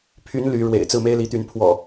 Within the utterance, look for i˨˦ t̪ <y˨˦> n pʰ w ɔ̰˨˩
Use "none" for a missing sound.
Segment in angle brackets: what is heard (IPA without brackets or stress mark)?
y˨˦